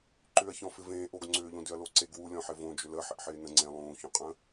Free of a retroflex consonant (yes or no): yes